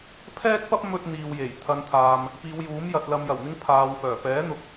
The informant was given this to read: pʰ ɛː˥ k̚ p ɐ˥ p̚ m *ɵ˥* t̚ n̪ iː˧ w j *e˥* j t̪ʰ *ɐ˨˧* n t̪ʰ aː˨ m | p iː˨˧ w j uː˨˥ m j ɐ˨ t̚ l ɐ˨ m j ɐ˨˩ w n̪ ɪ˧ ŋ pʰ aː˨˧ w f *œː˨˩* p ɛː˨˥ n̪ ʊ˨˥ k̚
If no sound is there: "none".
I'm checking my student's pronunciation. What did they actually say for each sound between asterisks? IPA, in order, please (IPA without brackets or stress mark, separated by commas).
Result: ɵ˥, e˨˩, ɐ˨˧, œː˨˩